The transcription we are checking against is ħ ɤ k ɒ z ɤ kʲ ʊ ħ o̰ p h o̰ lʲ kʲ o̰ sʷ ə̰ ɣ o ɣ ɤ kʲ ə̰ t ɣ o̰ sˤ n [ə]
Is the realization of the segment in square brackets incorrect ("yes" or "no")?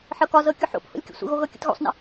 yes